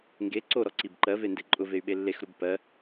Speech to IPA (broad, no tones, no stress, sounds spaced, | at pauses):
ŋ ɡ e ǀ o ɾ ɔ ǀ i b ǃ ɜ v e n d e ǃʼ ʊ v e y̯ ɓ e lː e x ɾ u b p ɜ